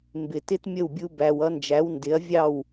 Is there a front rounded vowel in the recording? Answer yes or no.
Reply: no